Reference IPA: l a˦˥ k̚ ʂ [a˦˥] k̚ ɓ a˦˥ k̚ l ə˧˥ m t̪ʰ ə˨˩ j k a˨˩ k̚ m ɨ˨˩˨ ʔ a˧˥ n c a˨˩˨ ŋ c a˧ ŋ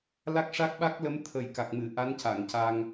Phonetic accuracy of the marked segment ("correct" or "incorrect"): correct